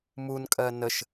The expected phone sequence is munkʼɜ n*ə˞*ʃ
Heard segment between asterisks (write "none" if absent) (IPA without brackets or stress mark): ə